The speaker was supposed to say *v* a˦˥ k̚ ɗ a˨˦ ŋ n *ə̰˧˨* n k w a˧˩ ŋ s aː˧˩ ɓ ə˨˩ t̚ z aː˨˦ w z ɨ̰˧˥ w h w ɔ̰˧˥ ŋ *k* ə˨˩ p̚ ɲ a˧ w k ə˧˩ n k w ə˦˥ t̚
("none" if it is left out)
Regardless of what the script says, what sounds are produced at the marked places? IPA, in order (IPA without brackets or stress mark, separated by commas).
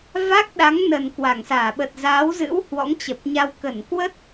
v, ə˨˩, t͡ɕ